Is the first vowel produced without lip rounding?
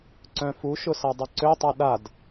no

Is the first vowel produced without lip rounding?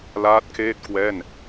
yes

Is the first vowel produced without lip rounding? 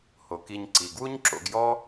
no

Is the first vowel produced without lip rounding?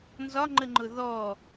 no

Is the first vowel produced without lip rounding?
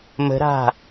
yes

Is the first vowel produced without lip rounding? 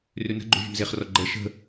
no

